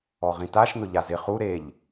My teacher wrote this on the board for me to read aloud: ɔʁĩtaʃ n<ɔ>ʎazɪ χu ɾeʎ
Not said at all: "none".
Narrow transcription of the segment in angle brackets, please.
ʊ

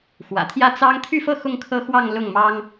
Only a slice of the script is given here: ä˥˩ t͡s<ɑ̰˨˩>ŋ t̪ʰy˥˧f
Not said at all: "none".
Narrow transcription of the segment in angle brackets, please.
ɑ˥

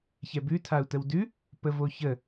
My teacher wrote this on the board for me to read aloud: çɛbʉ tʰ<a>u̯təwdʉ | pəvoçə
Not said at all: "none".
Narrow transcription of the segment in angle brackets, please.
a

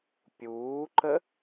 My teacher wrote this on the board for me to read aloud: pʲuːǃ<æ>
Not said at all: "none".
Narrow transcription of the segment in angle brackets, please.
ə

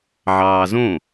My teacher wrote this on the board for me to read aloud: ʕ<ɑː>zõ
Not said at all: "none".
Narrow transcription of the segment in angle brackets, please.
ɑː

